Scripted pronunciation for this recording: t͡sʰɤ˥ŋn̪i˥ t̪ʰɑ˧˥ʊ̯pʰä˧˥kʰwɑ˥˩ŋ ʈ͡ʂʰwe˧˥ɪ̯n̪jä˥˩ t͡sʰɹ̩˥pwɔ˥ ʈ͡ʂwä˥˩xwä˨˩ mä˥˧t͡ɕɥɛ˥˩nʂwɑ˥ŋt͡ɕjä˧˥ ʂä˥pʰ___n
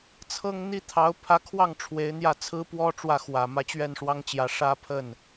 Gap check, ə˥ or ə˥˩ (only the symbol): ə˥˩